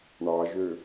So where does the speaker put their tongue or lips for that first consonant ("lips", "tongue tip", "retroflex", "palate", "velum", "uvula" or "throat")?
retroflex